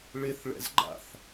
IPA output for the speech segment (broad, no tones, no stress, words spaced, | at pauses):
ɭɪθɭɛ̰z ɡ͡ǃa̰θ